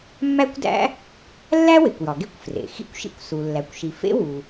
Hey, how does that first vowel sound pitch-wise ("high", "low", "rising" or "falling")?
high